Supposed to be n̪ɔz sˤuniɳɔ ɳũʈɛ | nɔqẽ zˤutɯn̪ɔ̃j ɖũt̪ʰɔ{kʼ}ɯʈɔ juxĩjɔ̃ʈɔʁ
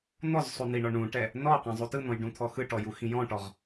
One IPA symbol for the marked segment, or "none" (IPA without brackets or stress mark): x